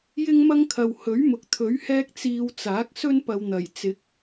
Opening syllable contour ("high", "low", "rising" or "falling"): high